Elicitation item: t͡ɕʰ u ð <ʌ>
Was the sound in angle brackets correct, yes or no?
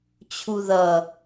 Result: yes